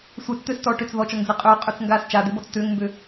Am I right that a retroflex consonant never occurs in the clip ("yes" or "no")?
no